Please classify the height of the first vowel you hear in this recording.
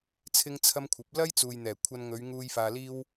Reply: high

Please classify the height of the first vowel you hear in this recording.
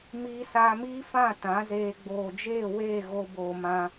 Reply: high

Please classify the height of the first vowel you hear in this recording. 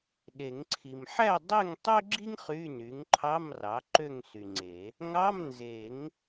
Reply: mid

